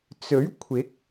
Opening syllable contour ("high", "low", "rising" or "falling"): rising